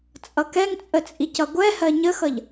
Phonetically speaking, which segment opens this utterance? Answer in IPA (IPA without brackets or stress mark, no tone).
t͡sʼ